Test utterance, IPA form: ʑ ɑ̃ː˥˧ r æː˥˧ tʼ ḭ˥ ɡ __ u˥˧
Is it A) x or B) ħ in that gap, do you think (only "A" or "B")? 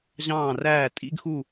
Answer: A